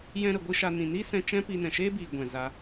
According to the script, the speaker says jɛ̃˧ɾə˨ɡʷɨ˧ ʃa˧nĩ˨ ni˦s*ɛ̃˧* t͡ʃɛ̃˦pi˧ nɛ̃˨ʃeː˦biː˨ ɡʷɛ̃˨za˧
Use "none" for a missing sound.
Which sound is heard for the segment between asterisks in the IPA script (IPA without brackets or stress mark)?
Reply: ɛ̃˧